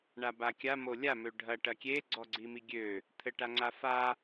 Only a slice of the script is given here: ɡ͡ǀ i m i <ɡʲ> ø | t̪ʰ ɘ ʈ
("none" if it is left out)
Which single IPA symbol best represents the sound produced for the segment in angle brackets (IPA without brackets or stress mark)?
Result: ɡʲ